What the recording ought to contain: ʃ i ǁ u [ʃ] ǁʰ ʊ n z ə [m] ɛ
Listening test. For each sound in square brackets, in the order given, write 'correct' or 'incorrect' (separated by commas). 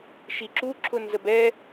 incorrect, incorrect